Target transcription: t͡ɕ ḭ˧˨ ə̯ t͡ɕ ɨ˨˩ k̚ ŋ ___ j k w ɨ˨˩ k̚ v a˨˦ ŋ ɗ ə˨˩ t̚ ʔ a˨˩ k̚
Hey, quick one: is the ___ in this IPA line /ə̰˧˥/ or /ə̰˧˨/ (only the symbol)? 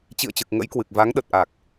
ə̰˧˥